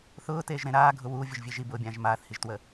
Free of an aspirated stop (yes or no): yes